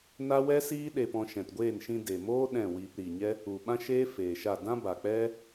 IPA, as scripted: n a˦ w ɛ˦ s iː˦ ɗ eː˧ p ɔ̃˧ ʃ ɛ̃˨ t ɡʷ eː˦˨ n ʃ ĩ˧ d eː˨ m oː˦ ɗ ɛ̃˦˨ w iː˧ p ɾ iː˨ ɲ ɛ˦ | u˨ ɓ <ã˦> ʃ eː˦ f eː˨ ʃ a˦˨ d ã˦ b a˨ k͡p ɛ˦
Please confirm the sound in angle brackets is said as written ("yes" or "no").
yes